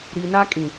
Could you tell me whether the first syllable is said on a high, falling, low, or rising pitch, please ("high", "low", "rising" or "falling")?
low